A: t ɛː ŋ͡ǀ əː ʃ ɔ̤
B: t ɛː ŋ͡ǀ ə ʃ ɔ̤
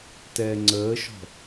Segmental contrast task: A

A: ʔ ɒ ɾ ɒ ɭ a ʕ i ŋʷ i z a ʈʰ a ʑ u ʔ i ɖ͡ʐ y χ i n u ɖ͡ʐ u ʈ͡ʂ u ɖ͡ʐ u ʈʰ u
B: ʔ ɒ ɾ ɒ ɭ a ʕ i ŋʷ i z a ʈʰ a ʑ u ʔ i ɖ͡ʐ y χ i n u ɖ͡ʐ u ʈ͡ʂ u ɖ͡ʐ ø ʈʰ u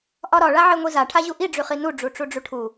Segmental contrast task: A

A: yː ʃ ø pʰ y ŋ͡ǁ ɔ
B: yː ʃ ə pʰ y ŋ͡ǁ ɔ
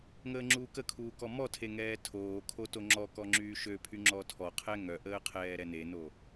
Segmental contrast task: A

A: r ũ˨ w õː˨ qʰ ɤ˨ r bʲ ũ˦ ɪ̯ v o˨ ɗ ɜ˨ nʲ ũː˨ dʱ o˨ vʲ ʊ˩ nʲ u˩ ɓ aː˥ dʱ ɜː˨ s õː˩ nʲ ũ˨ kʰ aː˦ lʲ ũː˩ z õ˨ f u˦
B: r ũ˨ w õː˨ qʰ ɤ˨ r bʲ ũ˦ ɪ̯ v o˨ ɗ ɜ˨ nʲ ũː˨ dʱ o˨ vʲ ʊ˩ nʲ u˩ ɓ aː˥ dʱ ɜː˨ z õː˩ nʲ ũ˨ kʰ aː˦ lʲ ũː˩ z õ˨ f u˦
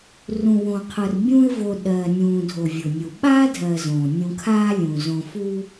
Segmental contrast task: B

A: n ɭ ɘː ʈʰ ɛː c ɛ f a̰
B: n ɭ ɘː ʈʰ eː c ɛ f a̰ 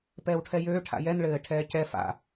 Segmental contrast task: A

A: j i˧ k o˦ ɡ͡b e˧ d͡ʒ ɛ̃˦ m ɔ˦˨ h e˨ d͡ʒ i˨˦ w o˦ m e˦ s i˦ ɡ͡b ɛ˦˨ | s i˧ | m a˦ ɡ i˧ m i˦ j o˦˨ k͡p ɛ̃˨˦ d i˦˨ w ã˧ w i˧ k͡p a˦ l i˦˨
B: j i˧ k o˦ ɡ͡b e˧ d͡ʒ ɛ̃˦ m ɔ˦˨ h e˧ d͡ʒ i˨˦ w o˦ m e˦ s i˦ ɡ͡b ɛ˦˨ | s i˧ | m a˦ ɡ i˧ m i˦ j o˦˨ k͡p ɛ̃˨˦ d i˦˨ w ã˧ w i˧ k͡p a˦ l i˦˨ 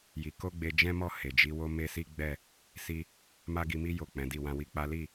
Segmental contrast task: A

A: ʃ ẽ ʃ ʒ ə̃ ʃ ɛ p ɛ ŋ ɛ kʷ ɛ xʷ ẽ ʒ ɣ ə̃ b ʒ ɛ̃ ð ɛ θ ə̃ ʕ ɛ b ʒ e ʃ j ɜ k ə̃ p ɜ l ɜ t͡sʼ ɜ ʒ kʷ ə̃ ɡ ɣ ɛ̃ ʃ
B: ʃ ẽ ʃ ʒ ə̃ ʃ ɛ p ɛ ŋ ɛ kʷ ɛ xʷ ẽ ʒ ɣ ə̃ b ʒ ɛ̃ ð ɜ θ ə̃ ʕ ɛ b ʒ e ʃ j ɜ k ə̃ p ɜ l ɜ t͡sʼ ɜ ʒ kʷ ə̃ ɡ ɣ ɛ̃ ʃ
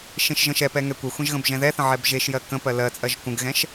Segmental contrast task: A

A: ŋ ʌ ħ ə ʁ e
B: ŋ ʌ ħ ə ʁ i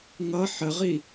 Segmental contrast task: B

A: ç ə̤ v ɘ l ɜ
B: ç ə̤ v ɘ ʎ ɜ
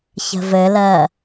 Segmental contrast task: A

